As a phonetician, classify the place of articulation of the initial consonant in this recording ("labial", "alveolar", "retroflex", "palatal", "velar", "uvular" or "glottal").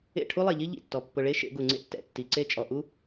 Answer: retroflex